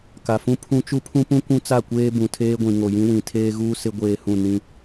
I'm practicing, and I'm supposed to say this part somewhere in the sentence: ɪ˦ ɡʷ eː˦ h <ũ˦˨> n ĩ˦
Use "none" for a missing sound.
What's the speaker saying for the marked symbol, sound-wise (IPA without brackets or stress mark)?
ũ˦˨